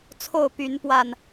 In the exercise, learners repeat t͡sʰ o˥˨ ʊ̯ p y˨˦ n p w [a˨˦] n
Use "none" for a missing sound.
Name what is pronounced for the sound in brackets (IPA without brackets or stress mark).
a˨˩